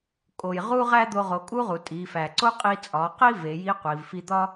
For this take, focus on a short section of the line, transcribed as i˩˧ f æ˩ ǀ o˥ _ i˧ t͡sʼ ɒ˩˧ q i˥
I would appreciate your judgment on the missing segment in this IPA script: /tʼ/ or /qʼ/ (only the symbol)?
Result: qʼ